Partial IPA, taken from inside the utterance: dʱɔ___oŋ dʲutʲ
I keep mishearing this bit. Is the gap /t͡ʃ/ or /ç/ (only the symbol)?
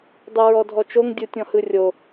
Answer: t͡ʃ